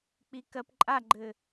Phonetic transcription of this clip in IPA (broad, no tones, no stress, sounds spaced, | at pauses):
k͡p i k ɜ p ǃʼ a ɡ͡ǃ ɘ